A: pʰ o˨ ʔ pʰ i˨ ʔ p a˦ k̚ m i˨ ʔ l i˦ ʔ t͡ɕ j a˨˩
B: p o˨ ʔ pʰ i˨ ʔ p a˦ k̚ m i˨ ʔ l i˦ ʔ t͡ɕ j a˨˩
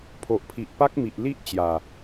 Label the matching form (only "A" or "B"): A